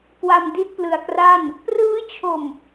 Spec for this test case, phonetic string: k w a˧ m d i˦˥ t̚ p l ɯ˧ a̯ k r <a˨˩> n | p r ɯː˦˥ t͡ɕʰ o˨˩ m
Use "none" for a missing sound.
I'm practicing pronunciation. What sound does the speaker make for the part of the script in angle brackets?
a˥˩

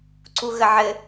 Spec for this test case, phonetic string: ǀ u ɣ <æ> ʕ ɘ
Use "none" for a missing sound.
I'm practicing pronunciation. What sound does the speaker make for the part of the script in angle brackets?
ə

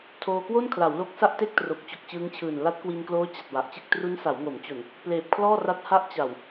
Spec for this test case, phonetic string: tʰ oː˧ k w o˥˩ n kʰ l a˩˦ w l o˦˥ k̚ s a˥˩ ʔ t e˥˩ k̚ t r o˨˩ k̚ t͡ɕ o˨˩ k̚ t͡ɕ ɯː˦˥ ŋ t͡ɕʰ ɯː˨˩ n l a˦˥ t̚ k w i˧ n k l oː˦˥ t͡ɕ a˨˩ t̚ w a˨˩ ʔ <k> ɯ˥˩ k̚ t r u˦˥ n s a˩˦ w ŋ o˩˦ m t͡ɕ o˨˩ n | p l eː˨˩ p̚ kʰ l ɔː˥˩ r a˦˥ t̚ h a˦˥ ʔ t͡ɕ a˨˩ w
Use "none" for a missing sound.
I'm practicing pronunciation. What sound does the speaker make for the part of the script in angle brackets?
t͡ɕ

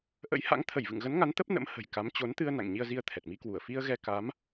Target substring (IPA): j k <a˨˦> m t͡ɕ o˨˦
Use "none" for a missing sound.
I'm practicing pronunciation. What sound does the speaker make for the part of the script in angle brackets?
a˨˦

